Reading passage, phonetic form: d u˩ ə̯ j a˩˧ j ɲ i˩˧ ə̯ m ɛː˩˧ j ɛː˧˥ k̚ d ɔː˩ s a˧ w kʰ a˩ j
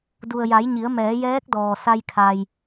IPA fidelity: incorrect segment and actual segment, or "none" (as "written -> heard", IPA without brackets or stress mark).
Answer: w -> j